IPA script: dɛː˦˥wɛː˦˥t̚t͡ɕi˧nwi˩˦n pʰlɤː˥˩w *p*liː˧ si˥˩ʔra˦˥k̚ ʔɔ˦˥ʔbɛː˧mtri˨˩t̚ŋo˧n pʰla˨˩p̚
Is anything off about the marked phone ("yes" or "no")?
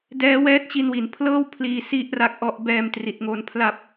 yes